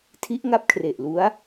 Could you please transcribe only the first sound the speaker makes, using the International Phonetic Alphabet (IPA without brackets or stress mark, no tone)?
tʰ